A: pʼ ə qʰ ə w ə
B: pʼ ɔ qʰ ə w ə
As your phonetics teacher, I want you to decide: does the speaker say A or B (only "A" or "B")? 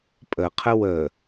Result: A